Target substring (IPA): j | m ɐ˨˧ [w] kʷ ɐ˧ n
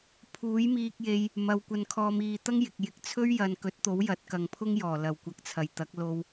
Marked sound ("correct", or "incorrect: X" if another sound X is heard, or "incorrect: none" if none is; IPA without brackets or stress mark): correct